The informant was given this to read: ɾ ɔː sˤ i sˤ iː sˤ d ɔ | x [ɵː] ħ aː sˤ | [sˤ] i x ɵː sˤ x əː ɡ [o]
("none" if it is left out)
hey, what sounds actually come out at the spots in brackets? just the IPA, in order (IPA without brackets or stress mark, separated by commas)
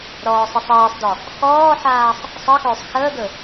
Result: ɔː, sˤ, ɵ